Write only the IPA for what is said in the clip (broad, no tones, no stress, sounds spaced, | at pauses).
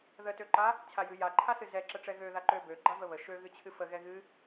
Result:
ð ə t ø ǃ a | t͡ɕʰ a j ɨ j a ǃʰ a s ɨ z ɛ ǁ ə ʈ͡ʂ ɛ ɣ ø ð a ǃ ø b ø ɡ͡ǃ a v ə β ə ʃ ø ɣ ɨ t͡ɕʰ ɨ f ə ɣ ɛ ɣ ɨ